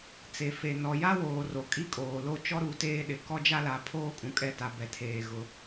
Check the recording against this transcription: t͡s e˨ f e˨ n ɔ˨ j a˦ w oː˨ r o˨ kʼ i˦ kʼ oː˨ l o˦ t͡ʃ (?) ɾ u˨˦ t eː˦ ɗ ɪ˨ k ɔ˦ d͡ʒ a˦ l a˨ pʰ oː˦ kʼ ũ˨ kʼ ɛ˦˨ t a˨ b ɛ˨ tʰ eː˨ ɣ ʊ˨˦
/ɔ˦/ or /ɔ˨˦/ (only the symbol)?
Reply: ɔ˦